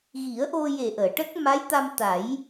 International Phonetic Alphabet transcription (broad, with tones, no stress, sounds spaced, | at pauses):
ɣ i˨˩˦ ə̯ ʔ o˧ j e˨˩ ʔ əː˨˩˨ ʈ ə˦˥ k̚ m a˧˥ j t̪ a˧ m t̪ a˨˩˦ j